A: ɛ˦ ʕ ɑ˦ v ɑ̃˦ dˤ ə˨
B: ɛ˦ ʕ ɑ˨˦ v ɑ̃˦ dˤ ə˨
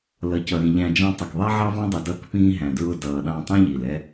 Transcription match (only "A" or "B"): A